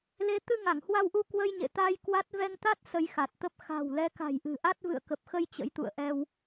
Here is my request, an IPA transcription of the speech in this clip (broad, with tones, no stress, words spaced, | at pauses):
le˨˦ t̪ɨ˧ŋa˧˩ŋhwa˧wʔu˧ kwə˧jɲḛ˧˨t̪aː˧j kwa˦˥t̚ vɛ˧ŋt̪a˦˥t̚ sə˧jxa˨˩t̚t̪ə˦˥p̚ xa̤˨˩w lɛ˨˦ka̤˨˩jʔɨ̤˨˩ʔa˦˥t̚ vɨ̰˧˨ə̯kə˨˩p̚xə˧j t͡ɕə̰˧˥jt̪ṵ˧˨ə̯ʔɛ˧w